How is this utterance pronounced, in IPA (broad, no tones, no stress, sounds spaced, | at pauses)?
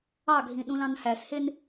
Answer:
ɑ ɡʱ ĩ ɗ ũ l ɑ̃ n h æ s h e n